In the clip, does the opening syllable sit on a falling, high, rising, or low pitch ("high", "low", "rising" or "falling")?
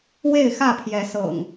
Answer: falling